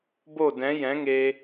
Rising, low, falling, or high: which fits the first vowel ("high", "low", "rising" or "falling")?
falling